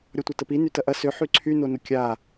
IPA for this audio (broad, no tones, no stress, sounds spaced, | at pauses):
ɾʲ ɔ tʷ ɐ t ə p i n y t ɐ ʔ ɐ s ø ħ y ǀʰ y n o n ʊ kʲ a